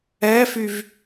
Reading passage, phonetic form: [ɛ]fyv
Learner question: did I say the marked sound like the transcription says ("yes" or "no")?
yes